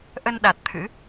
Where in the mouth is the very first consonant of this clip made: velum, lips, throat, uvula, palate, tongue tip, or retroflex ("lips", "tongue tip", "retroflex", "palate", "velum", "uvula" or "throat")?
throat